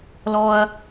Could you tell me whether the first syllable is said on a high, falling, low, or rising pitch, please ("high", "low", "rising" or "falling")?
high